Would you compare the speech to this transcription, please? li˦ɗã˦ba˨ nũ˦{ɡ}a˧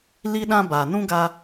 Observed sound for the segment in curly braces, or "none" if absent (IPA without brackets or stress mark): ɡ